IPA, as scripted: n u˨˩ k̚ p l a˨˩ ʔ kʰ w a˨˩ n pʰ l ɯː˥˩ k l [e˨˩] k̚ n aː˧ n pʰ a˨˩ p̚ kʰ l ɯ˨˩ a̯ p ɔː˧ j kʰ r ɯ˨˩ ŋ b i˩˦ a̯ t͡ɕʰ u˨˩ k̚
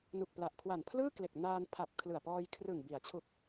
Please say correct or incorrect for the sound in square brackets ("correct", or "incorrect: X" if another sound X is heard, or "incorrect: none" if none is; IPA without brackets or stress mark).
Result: correct